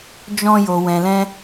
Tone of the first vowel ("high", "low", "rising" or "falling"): high